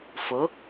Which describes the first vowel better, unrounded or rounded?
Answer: rounded